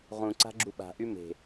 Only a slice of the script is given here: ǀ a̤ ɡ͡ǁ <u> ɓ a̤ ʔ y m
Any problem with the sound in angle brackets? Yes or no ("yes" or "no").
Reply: no